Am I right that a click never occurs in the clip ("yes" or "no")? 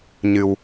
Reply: yes